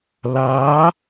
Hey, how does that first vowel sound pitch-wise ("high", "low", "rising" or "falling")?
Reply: rising